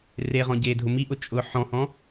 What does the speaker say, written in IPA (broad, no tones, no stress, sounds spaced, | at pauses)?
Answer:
r e ʁ ɔ̃ ɟ e dʱ ʊ m i ʔ ʊ t͡ʃʼ ʊ ħ ɔ̃ h ɔ̃